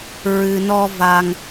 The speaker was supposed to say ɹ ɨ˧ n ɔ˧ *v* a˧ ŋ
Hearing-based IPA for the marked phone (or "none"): v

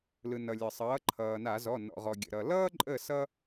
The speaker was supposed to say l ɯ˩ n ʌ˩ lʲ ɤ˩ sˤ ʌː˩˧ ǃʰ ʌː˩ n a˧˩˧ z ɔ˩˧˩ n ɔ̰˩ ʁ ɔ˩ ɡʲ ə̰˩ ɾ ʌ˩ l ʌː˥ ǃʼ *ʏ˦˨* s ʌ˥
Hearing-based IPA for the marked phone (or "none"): ə˦˨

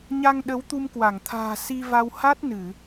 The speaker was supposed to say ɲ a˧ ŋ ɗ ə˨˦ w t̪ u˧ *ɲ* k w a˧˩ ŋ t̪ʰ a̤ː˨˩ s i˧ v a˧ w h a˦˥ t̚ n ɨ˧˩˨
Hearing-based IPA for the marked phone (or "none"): m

